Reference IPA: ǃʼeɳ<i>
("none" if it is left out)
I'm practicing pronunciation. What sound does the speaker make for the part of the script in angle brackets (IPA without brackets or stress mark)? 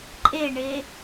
e